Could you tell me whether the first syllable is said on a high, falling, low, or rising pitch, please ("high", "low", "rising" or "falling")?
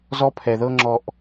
high